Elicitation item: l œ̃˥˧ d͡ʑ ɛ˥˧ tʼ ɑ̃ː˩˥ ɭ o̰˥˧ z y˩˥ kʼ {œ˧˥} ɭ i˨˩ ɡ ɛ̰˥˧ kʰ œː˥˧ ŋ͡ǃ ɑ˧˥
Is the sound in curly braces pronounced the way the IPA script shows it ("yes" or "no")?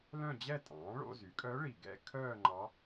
yes